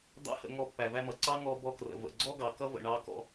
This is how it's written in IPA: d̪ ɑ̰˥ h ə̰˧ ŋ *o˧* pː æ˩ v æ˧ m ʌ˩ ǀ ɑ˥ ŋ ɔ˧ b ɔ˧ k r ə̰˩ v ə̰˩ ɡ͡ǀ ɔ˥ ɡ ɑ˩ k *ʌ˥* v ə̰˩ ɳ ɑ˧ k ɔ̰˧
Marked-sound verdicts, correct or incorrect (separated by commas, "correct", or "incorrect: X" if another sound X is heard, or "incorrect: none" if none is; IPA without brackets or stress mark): incorrect: ɔ˧, correct